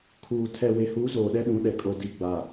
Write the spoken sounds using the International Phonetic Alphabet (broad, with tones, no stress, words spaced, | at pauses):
kʰuː˨ tʰɛ˨we˨huː˨˦ zoː˨ɗɛ˦ɗũ˨˦ɗɛ˨ kʼo˨di˨ɡ͡ba˨